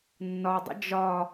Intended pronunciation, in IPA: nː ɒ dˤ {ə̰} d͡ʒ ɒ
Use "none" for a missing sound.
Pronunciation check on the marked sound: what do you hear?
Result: ə̰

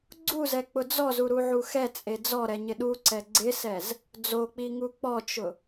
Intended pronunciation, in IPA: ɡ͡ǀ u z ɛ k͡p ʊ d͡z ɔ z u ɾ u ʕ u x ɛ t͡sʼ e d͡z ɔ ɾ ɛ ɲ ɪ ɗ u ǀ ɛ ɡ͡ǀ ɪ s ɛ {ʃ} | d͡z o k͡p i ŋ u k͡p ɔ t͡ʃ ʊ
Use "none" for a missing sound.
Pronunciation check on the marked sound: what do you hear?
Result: z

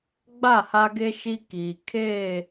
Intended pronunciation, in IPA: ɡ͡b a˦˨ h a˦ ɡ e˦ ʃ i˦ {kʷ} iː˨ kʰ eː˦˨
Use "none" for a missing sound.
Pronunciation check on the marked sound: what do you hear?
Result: k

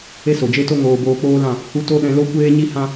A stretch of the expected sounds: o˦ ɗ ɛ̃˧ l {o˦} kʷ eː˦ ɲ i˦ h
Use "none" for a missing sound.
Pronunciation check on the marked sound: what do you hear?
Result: o˦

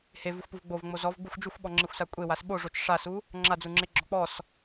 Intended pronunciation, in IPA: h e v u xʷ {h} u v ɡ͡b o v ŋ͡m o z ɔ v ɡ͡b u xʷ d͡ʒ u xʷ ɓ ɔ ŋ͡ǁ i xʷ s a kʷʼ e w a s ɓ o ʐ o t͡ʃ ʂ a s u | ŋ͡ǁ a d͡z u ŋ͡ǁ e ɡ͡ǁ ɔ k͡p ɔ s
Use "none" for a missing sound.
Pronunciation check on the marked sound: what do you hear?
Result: p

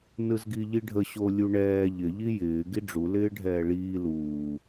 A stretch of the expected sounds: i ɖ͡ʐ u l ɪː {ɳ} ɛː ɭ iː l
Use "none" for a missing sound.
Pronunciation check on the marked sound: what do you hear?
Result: ɖʱ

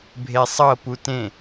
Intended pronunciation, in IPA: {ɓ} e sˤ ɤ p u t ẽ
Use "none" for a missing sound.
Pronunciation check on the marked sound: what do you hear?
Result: bʱ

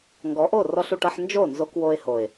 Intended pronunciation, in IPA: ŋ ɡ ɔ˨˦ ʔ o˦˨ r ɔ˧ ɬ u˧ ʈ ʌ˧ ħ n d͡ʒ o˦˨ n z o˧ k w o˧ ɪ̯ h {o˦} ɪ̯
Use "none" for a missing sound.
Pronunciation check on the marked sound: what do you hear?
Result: o˨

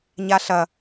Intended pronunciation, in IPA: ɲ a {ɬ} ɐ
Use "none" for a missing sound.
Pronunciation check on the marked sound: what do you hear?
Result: ɬ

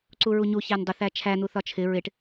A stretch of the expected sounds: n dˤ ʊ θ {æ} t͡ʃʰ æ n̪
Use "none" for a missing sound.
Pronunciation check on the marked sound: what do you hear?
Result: æ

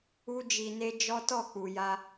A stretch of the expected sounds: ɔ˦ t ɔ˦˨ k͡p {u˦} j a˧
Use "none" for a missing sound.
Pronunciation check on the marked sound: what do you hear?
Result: u˨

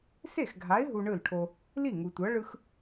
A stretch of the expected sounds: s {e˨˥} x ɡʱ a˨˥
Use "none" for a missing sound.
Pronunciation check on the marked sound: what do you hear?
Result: e˥˩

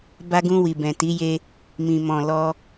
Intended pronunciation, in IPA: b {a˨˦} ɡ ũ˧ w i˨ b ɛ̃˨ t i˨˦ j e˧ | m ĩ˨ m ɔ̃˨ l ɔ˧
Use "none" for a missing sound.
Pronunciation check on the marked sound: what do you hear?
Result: a˧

